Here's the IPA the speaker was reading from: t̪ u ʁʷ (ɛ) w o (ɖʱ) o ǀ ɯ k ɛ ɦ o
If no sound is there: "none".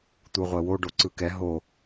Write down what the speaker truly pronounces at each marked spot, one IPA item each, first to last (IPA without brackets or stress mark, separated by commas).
ɛ, ɖ